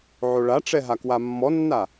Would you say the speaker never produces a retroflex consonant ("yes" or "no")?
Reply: no